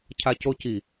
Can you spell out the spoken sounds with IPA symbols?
cʰacoci

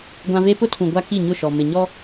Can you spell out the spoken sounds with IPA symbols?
ɡʷã˦ ve˦ pʊ˦tʰũ˨ ɡʷa˦ki˦˨ɲʊ˦˨ʃɔ˨ mɪ˨ɲɔ˦

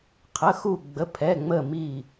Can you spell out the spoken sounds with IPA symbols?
qʰə˩˧˩xu˧˩ ɡ͡bə˩˧˩pʰɛ˩˧˩ŋ͡mə˧˩ mi˧˩

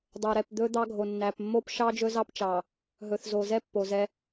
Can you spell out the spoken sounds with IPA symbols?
dˤo˨ɾɛ˨pd̪ɵ˦ d̪ɑ˦ɡʱo˨nːæ˨p mːo˦pʃɑ˦ d͡ʒɵ˦zɑ˦pt͡ʃɑ˨ | ɦɵ˨θzo˨zɛ˦ pːo˨zɛ˦

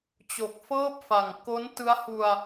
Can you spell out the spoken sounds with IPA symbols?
t͡ɕo˨˩k̚fɤː˥˩p̚fa˨˩ŋ ko˦˥ntɯ˦˥a̯hu˧a̯

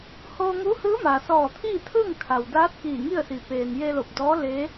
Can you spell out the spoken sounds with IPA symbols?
hoː˧ŋu˧˥hɯː˧˥ma˩ sɔː˧˩t̪ʰiː˥˨ t̪ʰɯː˥˨ŋkʰa˩wdaː˧˥t̚ kiː˧˩ŋi˥˨ə̯si˩ peː˩nje˧lo˧˩p̚dɔː˧˥ le˧˥

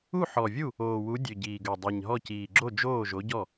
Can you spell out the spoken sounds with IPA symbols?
u˥˩ħɔ˨˩vʲu˥˩ | oː˨˩wu˨˥dʲø˨˩ ɟiː˨˩ɡø˨˩ dˤi˨˩ɲɦɔ˥˩ciː˨˩ ɡ͡ǁo˥˩d͡ʒoː˥˩ʒo˨˥ɟɔ˥˩

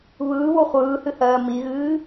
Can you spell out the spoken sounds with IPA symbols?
βɯːβo χʷɯːhɨhɜː miɣɨː

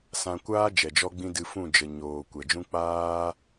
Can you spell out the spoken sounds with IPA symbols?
sã˧ kʷaː˦ d͡ʒɛ˨d͡ʒɔ˦ɡ͡bĩ˦ dɨ˧fũ˦˨ d͡ʒə˨ ɲoː˨ kʷɛ˨d͡ʒũ˦ k͡paː˦

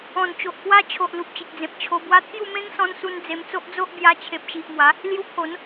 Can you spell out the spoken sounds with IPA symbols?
ɔ̃˨˩nt͡ɕo˨ʔkwa˦t͡ɕʰo˨ʔ lu˨p̚t͡ɕi˨k̚d͡zẽ˨p̚ t͡ɕʰo˧ bwa˧t̪ʰju˥˧ mẽ˦ŋsɔ̃˧nsu˧n d͡ze˧mt͡so˦ʔd͡zo˦ʔ bja˧t͡ɕʰe˨p̚ɕi˨ʔmwa˨˦ | lju˧pʰo˨˦n

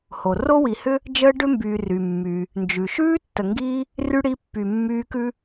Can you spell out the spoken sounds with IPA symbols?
ho˩ ro˥wi˨hʏ˥ | d͡ʒəː˥ɖʏ˥mbyː˨ry˩ mːy˩ | nd͡ʒʉ˩ ʃʉː˥tːə˨ŋɡiː˦ | ry˥ɽi˦pːy˨ mːyː˦kʉ˥

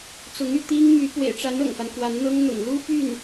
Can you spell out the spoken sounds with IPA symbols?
t͡sʊ˧˥ŋy˥˩ t̪i˥ŋ my˧˥ pwḛ˨˩ɪ̯ʈ͡ʂa˧˥n ɤ̰˨˩ŋfa˦n kwa˧˥nn̪ɤ˥ŋ n̪ʊ̰˨˩ŋlu˥ py˥˩n

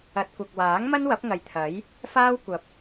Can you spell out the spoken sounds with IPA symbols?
ɐ˨t̚kʷɐ˨k̚waː˨˥ŋ mɐ˥nwɐ˨˥p̚ŋɐ˨jt̪ʰɐ˨˥j | faː˥w kʷɐ˨p̚

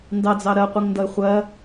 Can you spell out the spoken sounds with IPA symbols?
ndɑd͡zɑ ɾɜqʷiŋndʌe̯ χʷɜ

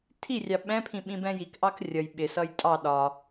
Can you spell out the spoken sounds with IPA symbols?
tʰirʲɑ ɓɛ̃pʰĩ ɓĩbɛ̃jikʔɑk rʲʌj ɓɪsʌj tʼɑ ɗɒ

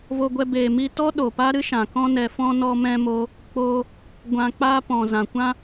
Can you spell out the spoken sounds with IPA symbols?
vo˧ɡʷɛ˧ beː˨mi˧tɔ˦ ɗo˨pa˦ɾɨ˦ʃã˨ kɔ̃˧nɛ˨fɔ̃˧ nɔ˧mɛ̃˧mo˧ | k͡po˧ | ɡʷã˧k͡paː˦ pɔ̃˨ zã˨ kʷã˦

